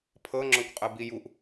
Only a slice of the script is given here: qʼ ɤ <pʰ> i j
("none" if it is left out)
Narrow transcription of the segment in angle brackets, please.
b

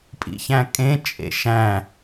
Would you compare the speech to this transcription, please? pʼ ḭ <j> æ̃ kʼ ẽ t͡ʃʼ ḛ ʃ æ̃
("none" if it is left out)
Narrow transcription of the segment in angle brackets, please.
ç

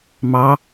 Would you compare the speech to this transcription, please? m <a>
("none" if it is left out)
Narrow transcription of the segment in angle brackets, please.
ɑ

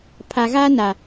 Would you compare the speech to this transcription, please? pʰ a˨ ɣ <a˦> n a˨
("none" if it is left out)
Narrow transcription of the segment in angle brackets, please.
a˦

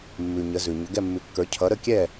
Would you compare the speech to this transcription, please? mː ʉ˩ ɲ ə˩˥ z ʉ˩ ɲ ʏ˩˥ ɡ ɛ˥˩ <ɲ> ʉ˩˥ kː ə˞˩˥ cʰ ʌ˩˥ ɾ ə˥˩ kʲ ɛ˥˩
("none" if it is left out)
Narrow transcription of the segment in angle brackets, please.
mː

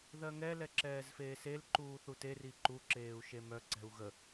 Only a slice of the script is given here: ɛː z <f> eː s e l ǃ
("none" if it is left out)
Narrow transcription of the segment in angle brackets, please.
f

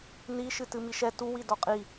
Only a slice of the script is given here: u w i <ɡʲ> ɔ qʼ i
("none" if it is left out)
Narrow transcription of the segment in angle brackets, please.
d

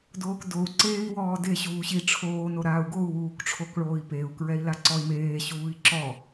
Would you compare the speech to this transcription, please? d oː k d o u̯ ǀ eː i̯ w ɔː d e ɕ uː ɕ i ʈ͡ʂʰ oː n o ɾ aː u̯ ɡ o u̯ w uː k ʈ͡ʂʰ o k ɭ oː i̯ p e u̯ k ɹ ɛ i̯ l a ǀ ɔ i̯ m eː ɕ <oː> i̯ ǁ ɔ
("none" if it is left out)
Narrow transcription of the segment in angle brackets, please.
uː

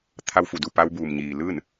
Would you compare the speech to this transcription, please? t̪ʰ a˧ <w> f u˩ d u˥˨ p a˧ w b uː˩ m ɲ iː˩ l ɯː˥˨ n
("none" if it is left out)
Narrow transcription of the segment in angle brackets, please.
w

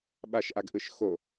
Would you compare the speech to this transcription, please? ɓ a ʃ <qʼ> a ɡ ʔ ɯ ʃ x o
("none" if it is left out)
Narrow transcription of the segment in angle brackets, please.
ʔ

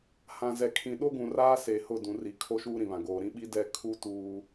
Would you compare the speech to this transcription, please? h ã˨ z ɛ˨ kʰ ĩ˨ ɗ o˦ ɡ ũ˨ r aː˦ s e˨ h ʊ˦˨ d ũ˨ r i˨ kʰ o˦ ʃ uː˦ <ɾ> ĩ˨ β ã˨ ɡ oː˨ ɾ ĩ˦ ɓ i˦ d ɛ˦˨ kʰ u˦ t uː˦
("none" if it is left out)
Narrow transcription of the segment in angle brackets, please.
ɾ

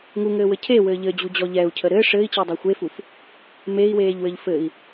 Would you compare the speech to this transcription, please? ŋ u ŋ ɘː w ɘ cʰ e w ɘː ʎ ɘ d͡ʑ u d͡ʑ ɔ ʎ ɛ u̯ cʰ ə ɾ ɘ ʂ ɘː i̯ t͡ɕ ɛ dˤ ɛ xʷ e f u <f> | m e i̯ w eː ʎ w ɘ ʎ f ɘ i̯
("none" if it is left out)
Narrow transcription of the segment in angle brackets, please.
f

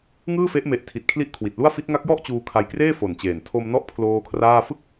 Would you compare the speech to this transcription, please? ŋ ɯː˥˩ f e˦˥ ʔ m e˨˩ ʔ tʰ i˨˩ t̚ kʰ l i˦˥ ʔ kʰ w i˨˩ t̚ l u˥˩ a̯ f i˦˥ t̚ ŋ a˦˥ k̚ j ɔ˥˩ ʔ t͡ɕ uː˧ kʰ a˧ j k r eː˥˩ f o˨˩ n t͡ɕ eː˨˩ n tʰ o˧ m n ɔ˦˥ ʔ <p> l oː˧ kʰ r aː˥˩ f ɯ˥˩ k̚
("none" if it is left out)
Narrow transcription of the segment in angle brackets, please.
pʰ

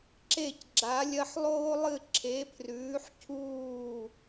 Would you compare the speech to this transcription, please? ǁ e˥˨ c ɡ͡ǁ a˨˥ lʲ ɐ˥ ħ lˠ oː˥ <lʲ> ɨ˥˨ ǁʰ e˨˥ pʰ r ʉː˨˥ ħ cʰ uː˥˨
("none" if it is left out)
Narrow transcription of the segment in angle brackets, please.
lˠ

